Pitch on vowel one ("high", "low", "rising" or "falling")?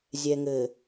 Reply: low